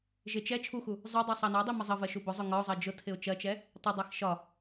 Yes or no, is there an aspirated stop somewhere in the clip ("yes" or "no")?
yes